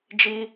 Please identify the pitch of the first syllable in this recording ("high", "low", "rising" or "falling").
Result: high